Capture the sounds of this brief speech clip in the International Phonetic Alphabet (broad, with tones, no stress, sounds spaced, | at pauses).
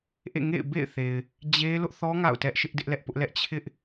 ʔ ḛ˦˨ ŋ ḛ˦˨ ɪ̯ b ḛ˦˨ ɪ̯ θ e˨ ɪ̯ | d͡ʑ e˦ l ʊ˦ ʔ θ ɔ˦ ŋ a̰˦˨ ʊ̯ t ɛ˦ ʔ ʃ ɪ˦ ʔ d ɪ˦ ʔ l ɛ˦ ʔ p ʊ˦ ʔ l ɛ˦ ʔ t͡ɕʰ ɪ˦ ʔ